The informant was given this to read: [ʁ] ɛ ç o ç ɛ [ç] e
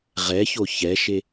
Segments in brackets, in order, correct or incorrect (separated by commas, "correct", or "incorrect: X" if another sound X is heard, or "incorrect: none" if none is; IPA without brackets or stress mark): correct, incorrect: ʃ